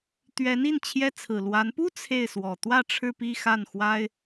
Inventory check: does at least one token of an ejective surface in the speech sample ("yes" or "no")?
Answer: no